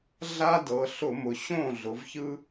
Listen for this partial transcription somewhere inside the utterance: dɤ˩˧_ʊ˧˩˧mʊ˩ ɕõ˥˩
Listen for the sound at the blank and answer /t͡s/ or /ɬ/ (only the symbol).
ɬ